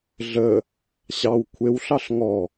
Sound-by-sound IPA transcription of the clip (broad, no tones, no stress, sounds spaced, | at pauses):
ɮ ə | ɕ ɑ w kʷʰ e w ɬ ɑ ɬ ŋ ɔ